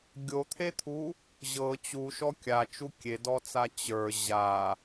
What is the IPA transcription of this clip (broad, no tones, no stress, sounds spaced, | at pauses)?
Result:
ɡʲ o t̪ʰ e t̪ʰ u | ʑ ɤ t͡ɕ u ʃ ɔ kʲ a t͡ʃ u kʲ e d ɔ t͡s a t͡ɕ ə˞ ʑ a